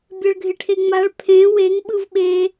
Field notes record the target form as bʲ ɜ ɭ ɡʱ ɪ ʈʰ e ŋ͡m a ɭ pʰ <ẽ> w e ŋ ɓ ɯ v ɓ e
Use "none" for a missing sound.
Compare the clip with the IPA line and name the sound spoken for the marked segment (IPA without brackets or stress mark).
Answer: ẽ